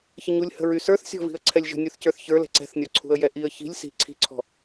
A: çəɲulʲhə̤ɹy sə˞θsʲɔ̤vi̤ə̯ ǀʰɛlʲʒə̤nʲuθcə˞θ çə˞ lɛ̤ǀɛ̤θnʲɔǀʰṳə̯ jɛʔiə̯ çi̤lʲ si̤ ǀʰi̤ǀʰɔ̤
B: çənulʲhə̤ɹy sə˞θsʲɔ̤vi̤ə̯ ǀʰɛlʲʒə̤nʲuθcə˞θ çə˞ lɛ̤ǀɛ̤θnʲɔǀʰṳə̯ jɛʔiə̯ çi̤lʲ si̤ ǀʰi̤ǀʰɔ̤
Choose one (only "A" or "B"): A